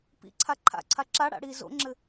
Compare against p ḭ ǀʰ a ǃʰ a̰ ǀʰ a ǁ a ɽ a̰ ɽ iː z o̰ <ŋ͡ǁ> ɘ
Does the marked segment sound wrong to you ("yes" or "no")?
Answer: no